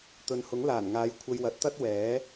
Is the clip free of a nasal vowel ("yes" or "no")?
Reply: yes